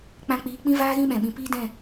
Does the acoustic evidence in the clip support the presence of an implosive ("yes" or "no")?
yes